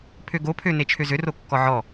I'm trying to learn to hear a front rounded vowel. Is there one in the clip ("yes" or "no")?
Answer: yes